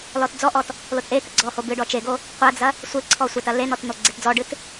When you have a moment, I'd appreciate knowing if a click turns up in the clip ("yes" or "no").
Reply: yes